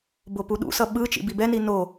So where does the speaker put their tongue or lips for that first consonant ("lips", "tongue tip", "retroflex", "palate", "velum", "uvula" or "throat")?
lips